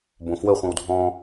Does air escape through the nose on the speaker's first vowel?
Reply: yes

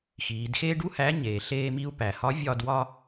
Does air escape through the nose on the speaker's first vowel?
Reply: no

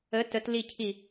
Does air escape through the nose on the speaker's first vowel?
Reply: no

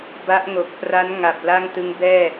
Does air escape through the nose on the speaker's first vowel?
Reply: no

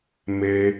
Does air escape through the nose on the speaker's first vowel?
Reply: no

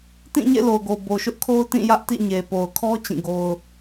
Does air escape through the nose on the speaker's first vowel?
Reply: yes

